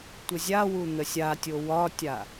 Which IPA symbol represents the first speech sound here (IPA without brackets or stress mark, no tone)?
tʷ